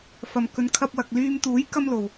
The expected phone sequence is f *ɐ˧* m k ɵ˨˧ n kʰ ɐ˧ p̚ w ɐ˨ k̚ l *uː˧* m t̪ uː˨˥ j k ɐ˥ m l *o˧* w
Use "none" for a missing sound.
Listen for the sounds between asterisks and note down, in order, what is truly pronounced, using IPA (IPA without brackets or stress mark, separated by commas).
ɐ˨, yː˧, o˨